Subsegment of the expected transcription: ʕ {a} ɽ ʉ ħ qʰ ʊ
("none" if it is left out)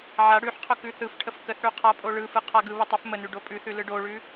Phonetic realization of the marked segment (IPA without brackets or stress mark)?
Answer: a